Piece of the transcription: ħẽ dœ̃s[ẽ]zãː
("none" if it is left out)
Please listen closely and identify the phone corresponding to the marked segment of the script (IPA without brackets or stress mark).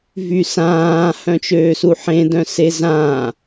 e